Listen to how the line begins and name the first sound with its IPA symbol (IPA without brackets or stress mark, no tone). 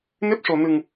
n